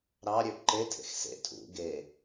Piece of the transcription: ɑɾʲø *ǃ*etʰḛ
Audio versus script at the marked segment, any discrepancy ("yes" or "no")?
no